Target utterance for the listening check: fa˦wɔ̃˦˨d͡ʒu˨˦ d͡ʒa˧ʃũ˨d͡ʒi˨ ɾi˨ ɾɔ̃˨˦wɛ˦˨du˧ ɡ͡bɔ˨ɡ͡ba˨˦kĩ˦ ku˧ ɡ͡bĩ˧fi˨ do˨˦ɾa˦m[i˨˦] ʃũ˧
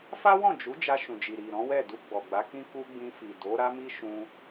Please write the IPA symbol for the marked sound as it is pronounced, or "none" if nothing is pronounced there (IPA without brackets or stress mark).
i˦